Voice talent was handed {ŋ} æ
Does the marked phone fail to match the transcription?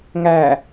no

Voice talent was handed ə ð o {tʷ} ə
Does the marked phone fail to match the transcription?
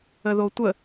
no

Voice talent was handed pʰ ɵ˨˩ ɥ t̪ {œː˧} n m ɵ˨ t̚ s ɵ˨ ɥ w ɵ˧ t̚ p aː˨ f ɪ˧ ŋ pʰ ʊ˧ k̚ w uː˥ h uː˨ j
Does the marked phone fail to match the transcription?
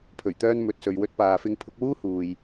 no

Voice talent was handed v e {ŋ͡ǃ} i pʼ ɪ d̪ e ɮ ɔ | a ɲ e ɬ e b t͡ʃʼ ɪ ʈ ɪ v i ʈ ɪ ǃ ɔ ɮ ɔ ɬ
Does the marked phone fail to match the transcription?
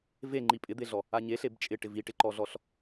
no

